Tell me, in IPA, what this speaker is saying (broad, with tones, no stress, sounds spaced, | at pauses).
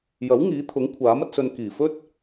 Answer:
j ɐ˨˥ w ŋ iː˨˥ t̪ʰ ʊ˨˥ ŋ kʷʰ aː˨˥ m ɐ˧ t̚ s ɵ˨ n k iː˨˩ f ɵ˥ t̚